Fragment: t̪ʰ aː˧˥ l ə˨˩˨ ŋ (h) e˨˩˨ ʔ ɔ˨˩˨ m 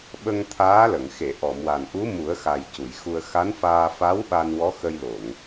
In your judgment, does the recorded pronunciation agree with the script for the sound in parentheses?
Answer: no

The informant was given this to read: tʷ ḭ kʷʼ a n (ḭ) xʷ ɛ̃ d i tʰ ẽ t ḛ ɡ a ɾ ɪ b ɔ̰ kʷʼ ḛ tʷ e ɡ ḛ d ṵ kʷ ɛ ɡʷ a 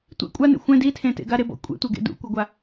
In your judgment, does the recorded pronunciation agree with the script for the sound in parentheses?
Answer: no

